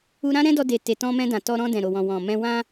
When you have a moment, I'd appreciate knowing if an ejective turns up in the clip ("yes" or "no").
no